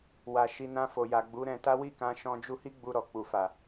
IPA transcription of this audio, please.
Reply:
w a˨ ʃ i˧ n ã˧ f o˨ j a˨ ɡ͡b u˨˦ ɾ ɛ̃˧ t a˦ w i˦˨ k ã˧ ʃ ɔ̃˧ d͡ʒ u˧ h i˦ ɡ͡b u˧ ɾ ɔ˨ k͡p u˨ f a˨

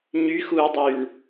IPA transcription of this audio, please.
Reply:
ɲ y x uː dˤ yː ɳ

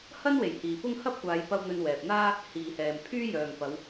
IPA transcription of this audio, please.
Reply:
h ɐ˥ n w e˨˩ j h iː˨ p ʊ˥ ŋ h ɐ˥ p̚ kʷ aː˨˧ j p ɐ˧ w n̪ ɵ˧ n w ɛː˨ p̚ n̪ aː˥ | h iː˨ h ɛː˨ m pʰ yː˥ j œː˨ ŋ p ɐ˨˧ w

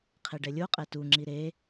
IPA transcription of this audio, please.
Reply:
qʰ e ɖ ɛ lʲ o qʼ ɛ t u ŋ͡ǁ i ɾ e

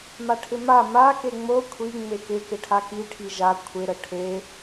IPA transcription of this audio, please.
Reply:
m a ʈʰ ɪ m a m a k e ŋ͡m o kʷʰ i ŋ͡m e k ɪ k ɪ ʈʰ a k i ʈʰ i ʒ a kʷʰ ɪ ɾ ə ʈʰ e

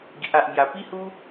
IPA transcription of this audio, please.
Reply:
ɡ i˨ ʔ a˨ ʔ m j a˨˩ p i˥˧ h u˦

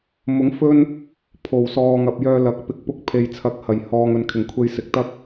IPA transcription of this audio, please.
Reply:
m ʊ˨˥ ŋ f ɵ˥ n | pʰ o˨˩ w s ɔː˨ ŋ ɐ˨ p̚ j œː˧ l ɐ˨˥ k̚ p ɪ˨˥ k̚ p ʊ˧ k̚ pʰ e˨ j t͡sʰ ɐ˨˥ k̚ h ɐ˨˩ j h ɔː˨ ŋ ɵ˨ n kʰ ɪ˨˩ ŋ kʷʰ e˧ j s ɪ˨ k̚ t̪ ɐ˥ k̚

